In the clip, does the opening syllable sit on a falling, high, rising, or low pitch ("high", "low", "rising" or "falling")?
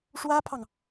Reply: high